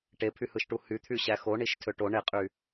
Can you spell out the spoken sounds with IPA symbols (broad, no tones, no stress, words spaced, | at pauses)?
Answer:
ʈepʰyhɯʃʈu hyt̪ʰy ɕæxoɳiʃ tʰøʈo ɳeqʼy